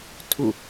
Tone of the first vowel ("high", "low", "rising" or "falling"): falling